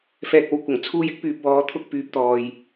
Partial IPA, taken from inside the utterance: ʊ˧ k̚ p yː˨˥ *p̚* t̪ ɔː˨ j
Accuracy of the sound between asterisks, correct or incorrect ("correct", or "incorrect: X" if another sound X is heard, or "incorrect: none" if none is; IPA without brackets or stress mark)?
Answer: correct